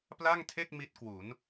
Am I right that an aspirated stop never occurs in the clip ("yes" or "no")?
no